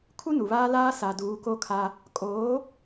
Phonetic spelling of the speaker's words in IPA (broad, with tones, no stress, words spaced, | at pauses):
kʰu˦nu˨βaː˦laː˦ sa˨ duː˨˦ko˦kʰa˦ | kʼoː˨˦